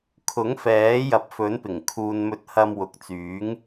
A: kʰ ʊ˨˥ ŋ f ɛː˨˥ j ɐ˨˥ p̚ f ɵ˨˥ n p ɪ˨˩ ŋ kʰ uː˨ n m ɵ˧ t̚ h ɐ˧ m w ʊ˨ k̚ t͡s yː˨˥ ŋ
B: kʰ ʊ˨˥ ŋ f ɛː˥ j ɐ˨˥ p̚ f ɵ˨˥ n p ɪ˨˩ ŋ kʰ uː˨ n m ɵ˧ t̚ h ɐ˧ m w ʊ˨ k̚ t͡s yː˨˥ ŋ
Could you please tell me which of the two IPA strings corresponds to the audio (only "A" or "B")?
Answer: A